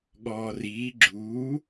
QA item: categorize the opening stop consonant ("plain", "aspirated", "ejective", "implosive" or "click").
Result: implosive